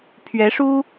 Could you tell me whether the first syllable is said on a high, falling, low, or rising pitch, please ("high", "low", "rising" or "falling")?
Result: rising